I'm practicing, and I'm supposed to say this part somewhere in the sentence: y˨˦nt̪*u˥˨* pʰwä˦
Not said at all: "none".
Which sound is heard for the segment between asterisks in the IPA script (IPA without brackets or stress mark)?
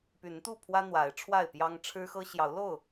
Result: u˥˨